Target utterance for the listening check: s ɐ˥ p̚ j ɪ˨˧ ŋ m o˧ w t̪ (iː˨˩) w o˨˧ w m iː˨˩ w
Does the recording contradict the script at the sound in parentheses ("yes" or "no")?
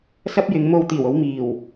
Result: no